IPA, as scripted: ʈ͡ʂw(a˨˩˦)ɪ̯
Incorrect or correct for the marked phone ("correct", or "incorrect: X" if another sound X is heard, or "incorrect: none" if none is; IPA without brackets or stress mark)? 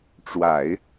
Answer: correct